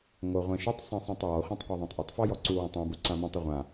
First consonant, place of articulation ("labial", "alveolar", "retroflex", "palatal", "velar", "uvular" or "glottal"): velar